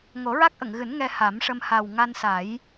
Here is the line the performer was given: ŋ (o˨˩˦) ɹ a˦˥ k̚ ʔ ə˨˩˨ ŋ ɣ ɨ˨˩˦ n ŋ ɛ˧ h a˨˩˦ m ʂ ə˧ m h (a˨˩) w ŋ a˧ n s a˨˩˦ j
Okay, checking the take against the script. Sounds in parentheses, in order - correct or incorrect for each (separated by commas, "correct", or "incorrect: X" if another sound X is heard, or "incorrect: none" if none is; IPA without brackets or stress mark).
correct, correct